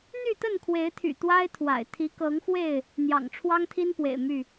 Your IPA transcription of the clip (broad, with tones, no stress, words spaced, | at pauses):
n̪y˥˨t̪ə˥˨nkʰwe˨˦ɪ̯t̪ʰy̰˨˩ t̪wa˦ɪ̯t̪ʰwa̰˨˩ɪ̯ t̪ʰi˨˦kɤ˨˦ŋxwe˥˨ɪ̯ | n̪jɑ̰˨˩ŋʈ͡ʂʰwɑ˦ŋt̪ʰi˦npwḛ˨˩ɪ̯ my˥˨